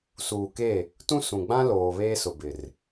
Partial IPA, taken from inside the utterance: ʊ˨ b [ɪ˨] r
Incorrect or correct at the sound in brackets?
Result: correct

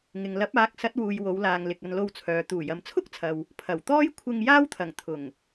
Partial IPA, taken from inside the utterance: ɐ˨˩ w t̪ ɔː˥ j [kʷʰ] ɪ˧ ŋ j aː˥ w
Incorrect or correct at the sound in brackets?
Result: correct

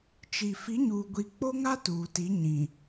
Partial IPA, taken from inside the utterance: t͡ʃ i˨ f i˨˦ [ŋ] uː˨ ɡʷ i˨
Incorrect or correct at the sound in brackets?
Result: incorrect: ɲ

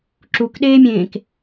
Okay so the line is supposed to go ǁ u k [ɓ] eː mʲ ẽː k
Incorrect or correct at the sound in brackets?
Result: incorrect: ɗ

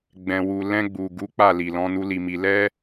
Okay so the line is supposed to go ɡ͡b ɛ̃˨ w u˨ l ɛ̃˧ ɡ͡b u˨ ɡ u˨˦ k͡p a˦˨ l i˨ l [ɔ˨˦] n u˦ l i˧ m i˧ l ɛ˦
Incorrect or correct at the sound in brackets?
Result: incorrect: ɔ̃˨˦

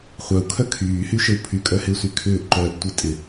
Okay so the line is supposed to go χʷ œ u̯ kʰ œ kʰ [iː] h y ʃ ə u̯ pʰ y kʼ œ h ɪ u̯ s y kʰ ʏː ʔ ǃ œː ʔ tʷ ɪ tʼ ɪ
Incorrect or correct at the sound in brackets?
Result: incorrect: yː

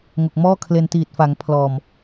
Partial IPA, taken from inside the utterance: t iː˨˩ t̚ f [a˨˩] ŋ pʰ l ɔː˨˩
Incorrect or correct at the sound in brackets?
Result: incorrect: a˩˦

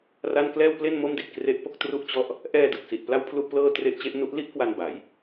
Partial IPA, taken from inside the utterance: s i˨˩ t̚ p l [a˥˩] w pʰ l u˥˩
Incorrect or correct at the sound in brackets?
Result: correct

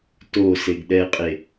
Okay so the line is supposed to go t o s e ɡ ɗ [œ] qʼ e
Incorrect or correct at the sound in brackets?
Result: incorrect: ɛ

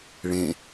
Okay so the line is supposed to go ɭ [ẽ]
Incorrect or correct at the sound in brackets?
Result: correct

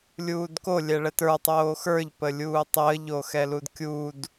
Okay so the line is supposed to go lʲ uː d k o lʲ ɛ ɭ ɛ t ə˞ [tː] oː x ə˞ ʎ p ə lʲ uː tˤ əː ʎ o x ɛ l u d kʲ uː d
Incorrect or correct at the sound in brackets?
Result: incorrect: tˤ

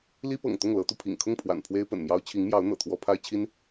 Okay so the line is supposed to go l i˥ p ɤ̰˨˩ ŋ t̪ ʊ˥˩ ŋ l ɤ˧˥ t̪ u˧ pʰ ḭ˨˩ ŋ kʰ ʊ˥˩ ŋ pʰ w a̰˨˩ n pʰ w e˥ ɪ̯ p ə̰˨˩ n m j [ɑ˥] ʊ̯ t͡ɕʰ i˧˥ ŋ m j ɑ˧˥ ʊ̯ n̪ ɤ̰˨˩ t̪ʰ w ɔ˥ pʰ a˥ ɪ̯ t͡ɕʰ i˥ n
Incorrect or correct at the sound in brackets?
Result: correct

